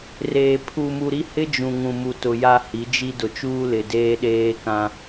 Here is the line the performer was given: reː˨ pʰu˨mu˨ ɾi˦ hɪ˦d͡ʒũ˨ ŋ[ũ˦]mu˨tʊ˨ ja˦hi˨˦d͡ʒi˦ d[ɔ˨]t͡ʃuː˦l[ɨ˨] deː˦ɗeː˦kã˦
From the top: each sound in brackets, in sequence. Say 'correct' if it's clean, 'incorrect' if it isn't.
incorrect, incorrect, incorrect

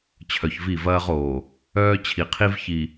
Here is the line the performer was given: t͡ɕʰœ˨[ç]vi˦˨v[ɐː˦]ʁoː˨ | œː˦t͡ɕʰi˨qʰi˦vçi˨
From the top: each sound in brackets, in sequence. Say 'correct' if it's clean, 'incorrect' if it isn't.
correct, correct

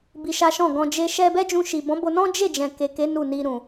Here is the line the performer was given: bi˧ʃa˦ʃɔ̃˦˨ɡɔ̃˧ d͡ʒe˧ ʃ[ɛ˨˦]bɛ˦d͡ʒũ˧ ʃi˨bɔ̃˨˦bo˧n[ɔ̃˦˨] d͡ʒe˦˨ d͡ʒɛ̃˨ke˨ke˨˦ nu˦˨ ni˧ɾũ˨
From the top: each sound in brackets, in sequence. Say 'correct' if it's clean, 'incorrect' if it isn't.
incorrect, incorrect

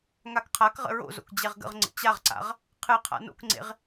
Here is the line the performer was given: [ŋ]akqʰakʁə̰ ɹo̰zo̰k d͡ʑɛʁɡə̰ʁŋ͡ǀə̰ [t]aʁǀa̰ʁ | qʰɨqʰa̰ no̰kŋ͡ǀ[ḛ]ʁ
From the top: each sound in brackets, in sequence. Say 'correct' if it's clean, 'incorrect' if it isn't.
correct, incorrect, correct

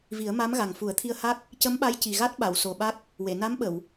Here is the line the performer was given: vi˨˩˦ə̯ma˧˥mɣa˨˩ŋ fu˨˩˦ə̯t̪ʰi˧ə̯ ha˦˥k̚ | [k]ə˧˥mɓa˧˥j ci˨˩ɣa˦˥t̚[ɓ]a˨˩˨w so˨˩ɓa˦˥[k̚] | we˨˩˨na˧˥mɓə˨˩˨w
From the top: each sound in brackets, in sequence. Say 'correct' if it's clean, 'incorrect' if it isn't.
incorrect, correct, correct

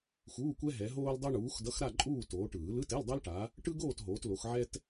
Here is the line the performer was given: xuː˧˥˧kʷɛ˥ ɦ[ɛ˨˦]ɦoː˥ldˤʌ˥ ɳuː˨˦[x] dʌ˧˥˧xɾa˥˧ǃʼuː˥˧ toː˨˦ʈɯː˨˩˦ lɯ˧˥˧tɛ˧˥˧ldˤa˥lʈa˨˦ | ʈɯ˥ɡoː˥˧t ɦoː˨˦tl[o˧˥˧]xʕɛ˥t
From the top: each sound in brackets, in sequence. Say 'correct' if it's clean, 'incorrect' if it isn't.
correct, correct, incorrect

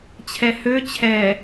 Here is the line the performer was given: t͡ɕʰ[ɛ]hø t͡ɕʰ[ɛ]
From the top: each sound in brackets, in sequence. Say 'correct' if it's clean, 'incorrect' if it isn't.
correct, correct

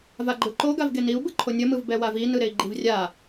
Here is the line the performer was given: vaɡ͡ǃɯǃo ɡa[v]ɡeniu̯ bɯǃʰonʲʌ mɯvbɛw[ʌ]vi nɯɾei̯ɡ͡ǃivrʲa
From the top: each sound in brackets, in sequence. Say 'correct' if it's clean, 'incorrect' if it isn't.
correct, incorrect

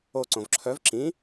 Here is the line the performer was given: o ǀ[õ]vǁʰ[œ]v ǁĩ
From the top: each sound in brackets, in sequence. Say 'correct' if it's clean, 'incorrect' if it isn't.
correct, correct

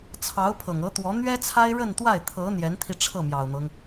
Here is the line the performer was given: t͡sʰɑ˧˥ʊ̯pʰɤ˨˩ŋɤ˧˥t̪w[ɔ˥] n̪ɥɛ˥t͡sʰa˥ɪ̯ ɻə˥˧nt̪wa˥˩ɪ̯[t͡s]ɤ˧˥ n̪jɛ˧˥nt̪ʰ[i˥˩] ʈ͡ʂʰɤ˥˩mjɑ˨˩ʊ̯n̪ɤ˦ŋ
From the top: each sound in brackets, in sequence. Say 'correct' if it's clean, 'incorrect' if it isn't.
incorrect, incorrect, incorrect

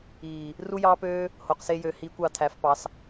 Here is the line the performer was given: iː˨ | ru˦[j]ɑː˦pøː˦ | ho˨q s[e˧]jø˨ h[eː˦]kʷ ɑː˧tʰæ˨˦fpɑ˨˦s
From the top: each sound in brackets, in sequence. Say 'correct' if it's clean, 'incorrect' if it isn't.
correct, correct, incorrect

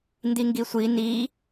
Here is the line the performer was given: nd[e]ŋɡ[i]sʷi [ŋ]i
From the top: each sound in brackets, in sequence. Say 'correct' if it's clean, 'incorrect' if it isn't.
incorrect, correct, incorrect

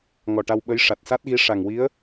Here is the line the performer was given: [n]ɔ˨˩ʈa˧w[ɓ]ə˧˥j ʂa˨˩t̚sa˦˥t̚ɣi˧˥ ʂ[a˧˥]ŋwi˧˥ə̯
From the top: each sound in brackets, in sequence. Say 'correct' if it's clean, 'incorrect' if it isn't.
incorrect, correct, incorrect

